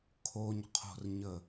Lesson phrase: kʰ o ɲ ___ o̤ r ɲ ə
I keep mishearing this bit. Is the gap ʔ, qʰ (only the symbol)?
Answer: qʰ